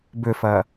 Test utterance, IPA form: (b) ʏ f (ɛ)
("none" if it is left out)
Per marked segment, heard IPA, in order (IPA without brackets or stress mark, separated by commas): b, ɜ